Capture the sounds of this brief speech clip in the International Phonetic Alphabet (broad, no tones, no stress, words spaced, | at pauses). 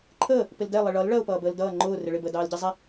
ǃʰəː | pɪldɛ lˠɪɭʌl ɭɜʊ̯pʌːbəːldʌː ŋ͡ǃʊː rɪɭɪb əːdɑːlɟizˤɪ